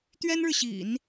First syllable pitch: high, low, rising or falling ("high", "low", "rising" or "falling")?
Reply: high